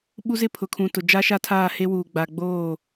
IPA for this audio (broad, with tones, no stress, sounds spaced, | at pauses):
ɓ u˦ z ɪ˦ pʰ ʊ˨ kʰ ũ˨ t ʊ˨ d͡ʒ a˦ ʃ a˦ tʰ aː˦˨ h e˦ w uː˨ ɡ͡b a˨ ɡ͡b oː˦˨